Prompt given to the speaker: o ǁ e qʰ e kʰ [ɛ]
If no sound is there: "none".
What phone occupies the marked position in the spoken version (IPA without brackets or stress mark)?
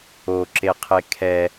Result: ɛ